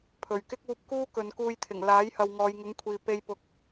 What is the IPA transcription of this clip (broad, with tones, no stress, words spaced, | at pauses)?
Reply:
pʰɵ˨˩ɥkɪ˥k̚uː˧p̚ kuː˥ kɵ˨˧nkuː˧jt̪ʰɪ˨˩ŋ laː˨˥jhɐ˨w ŋɔː˨˧jŋʊ˨˥ŋkʷʰiː˨ pe˧jpʊ˨˥k̚